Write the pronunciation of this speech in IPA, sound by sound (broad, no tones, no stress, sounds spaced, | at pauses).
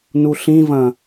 n u ɬ ĩ v ɐ̃